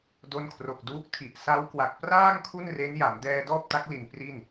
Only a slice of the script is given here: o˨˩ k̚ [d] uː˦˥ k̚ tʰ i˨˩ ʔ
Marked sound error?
no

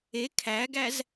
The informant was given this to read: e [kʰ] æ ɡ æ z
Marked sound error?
no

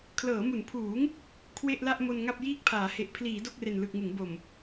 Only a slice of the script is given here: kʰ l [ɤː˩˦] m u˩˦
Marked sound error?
no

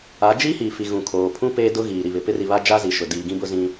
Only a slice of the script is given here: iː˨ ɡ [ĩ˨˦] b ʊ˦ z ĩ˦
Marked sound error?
yes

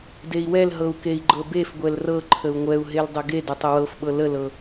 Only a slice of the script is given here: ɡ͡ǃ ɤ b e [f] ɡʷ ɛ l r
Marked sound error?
no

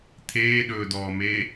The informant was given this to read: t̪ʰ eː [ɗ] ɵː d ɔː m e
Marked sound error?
no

